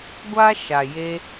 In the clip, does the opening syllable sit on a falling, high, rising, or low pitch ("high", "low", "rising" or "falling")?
high